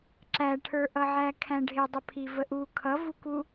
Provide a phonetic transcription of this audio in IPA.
ǁ æ ʈʰ ə˞ ʔ ʌ ʕ æ kʰ æ̃ ɖʱ ɪ dˤ ə pʰ i v ə ʔ u kʰ ʌ v u k u

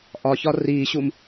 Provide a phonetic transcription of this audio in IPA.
ʔ ɒ ç ɒ r i ɕ u m

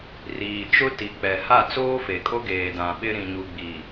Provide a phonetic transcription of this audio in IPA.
r iː˨ t͡ʃ ʊ˦ t i˨ k͡p ɛ˨ h a˦˨ t͡s oː˦ f e˨ kʼ o˦ ɡ eː˨ d ã˨ ɓ ɪ˦ ɾ ĩ˨ ɲ u˨ ɡ͡b i˨

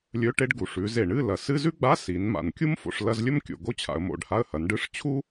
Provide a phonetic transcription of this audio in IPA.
lʲ ɵ˧˥˧ ʈ e˥ ɖ ɡ u˩˧ ʂ ʉ˩˧ z e˩ ɳ ɨ˧˥˧ l ɐ˩ s ɨ˧˥˧ z ʉ˥ ɡ͡b a˧˥˧ s i˩˧ n m a̰˩ n kʲ u˥ m f o̰˩˧ ʂ l ɐ˧˥˧ z lʲ ɵ˥ m kʲ o̰˩ ɡ o˥ t͡ɕʰ a̰˩˧ ə̯ m o̰˩˧ ɖ h a˧˥˧ ə̯ h ɐ˩˧ n ɖ ɨ˧˥˧ ʂ t͡ɕʰ u˥

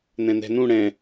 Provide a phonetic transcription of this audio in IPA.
n ɛ̃ n ɛ̤ n ũ ɽ ɛ̃

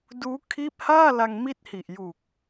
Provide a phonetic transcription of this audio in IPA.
d uː˦˥ kʰ iː˦˥ p̚ h aː˥˩ l a˧ ŋ m i˦˥ t̚ h i˨˩ ʔ j u˨˩ k̚

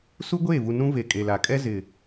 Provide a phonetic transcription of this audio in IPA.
s u˦ ɡʷ eː˦˨ v u˨ n ũ˦ v e˨ kʼ e˨ l a˨ kʼ ɛ˦ z ɪ˨

